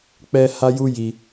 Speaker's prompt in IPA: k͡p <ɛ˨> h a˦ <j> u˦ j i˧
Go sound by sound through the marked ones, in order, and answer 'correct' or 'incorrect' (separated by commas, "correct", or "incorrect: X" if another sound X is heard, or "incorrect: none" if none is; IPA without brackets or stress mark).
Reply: incorrect: ɛ˦, correct